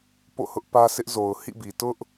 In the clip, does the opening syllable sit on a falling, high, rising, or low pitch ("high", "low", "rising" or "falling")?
falling